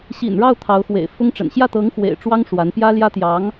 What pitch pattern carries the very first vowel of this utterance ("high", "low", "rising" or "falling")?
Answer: low